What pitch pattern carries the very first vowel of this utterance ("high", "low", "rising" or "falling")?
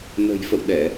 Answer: low